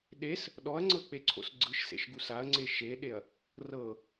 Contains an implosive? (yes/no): yes